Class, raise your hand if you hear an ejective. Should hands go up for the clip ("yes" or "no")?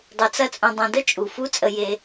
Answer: yes